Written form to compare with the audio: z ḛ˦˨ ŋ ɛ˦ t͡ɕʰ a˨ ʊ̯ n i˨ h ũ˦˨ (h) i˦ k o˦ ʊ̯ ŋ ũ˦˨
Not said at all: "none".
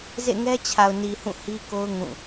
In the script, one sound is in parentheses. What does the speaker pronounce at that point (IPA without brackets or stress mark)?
h